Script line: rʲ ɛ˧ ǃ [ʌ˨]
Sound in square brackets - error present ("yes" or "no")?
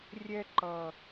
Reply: no